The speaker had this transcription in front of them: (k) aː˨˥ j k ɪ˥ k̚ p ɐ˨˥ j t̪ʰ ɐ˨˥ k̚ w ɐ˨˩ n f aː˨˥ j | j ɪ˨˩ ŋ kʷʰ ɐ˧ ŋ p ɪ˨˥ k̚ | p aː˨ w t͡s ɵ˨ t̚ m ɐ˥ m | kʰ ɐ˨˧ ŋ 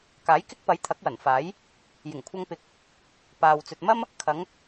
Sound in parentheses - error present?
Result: no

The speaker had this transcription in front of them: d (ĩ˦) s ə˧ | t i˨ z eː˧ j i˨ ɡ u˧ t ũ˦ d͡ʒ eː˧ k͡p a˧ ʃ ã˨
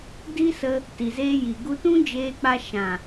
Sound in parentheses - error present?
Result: yes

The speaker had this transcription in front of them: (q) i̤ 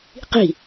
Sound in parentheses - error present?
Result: no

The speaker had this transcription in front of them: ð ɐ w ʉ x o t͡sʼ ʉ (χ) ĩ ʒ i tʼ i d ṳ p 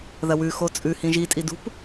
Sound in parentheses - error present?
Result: yes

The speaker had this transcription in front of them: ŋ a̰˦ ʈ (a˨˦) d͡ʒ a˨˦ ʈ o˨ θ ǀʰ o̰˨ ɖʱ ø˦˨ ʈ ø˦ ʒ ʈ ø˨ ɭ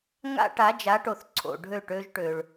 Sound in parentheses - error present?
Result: no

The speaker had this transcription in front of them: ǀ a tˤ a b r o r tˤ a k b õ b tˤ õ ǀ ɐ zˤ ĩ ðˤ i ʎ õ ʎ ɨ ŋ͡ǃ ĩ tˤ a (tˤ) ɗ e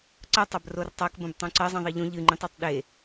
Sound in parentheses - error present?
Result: no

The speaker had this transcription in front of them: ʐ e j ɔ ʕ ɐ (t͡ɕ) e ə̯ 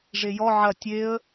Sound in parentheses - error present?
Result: yes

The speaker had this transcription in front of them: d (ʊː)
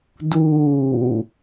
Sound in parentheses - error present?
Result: yes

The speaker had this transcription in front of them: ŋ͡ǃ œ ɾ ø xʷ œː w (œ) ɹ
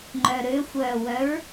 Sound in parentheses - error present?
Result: no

